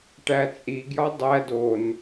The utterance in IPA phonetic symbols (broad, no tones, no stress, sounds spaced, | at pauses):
ʈ æ t͡sʼ i ɡ j ɒ dˤ æ d o n